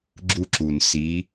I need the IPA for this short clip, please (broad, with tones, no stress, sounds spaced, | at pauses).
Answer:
ɡ͡ǁ u˧ ǁ u˩ n s i˩˧